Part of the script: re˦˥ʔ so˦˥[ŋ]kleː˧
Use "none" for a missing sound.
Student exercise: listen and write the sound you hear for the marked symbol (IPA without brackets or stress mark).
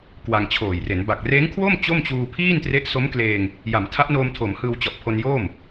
m